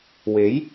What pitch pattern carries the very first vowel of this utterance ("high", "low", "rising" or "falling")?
rising